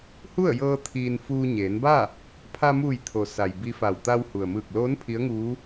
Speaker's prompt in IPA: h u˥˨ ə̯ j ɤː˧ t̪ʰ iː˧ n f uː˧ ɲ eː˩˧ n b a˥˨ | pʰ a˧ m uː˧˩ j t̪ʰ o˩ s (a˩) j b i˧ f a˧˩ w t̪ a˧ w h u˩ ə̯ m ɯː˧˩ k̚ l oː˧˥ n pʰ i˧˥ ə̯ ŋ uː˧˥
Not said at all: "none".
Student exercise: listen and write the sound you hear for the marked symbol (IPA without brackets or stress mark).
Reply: a˩